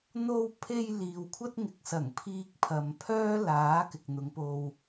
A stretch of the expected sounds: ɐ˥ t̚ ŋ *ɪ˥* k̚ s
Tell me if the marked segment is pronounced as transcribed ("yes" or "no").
no